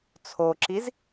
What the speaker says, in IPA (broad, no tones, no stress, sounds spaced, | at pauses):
t͡sʰ o ǁ i z